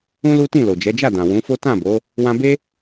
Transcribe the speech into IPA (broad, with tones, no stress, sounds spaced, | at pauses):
ũ˦ l u˦ t ĩ˦˨ l o˨ d͡ʒ ɛ˨˦ d͡ʒ a˦˨ d ã˨ w ũ˨˦ f o˦ t ã˦˨ b o˨˦ | w ã˧ b e˦